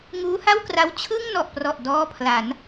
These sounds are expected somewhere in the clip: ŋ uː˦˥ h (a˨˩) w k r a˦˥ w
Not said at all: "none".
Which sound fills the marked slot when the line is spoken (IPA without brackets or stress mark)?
a˥˩